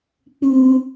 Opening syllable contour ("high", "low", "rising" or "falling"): high